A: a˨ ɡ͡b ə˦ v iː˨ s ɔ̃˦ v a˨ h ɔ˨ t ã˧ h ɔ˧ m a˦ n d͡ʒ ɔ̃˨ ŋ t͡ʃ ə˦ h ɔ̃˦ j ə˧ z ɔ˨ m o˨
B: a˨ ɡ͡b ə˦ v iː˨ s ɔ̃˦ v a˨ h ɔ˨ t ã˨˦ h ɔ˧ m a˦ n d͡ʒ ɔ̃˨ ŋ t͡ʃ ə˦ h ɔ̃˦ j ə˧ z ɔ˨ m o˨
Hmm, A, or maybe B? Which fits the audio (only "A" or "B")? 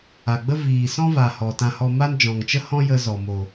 A